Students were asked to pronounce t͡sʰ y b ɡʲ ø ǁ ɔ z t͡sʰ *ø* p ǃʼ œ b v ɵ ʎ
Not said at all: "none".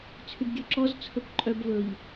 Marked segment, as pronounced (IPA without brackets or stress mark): ɵ